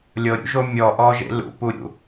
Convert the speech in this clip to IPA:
lʲɤɾʲṵʒo mʲɔʔɔ ʒḛlṵpuɾʲṵ

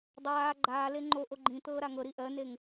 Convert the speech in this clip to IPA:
dˤaː ɡ͡ǃaːle ŋ͡ǃoʔo ɡ͡ǃĩt̪ɤː ɾaŋɤɾi ʔɜneŋ

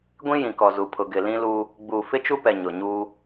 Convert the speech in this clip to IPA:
ɡʷĩ˦jĩ˨kɔ˨ zu˨pʰʊ˨ɡɪ˨ lĩ˦luː˦ | ɡ͡buː˨fɪ˦t͡ʃu˦pɛ˨ ɲʊ˨ɲuː˦

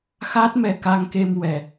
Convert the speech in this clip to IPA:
xa˦˥t̚ mɛ˧ka˧ŋke˧m wɛ˨˩

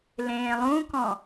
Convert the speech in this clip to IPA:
lẽːlˠũkɔ̃

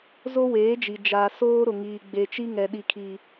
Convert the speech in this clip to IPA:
zo˦weː˨˦d͡ʒi˨ d͡ʒaː˨ soː˦ ɾʊ˨ŋiː˨ ɡ͡be˨t͡ʃi˦ ŋɛ˨ɗi˨kʰi˨

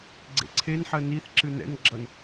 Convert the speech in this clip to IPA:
ɡ͡ǀḛǀʰenħɜ niθ ǁɨnɛ̰nɡ͡ǁʌn

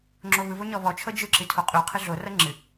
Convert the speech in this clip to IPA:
ŋ͡ǁoβɯβo ɲɔβɔt͡ʃʰɤ d͡ʒɯǁɨ tʰoqʼʉqʰɨ ɮorɤ ŋ͡ǁɨ

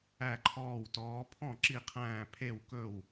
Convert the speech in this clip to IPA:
æ˥˨ǃʰɔː˥˨wtɔː˧˥ pʰɔ̃˥˨ ǁi˥˨qʰæ̃ː˥˨ pʰe˥˨wkɵ˥˨w

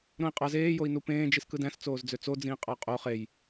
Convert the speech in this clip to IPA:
ɾõi̯qʼɑz eː joi̯nupẽː d͡ʒiskɯdæ̃s t͡soːzd͡zøt͡so d͡zĩːqʼɑqʼo χej

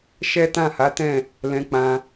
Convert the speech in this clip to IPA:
ʃɛ˦tã˦˨ha˨˦tɛ̃˦˨ | lɛ̃˧k͡pã˧

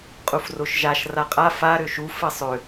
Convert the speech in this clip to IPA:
qʼufroʃʒaʃ raqʼa fa ɾøʃu fɘsˤø

